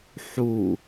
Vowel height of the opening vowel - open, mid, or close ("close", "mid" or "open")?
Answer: close